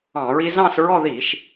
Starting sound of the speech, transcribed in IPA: ɑ̃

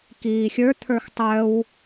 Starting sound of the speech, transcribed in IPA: k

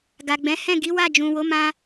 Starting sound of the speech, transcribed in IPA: ɡ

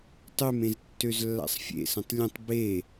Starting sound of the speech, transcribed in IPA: tˤ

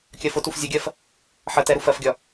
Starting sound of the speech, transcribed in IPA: kʲ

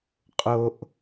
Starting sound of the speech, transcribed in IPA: qʼ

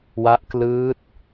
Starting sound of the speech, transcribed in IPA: w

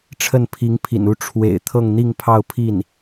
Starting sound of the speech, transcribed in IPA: ʈ͡ʂʰ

